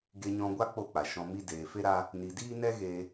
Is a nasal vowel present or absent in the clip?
present